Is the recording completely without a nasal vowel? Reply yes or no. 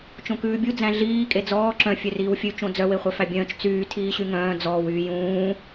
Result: no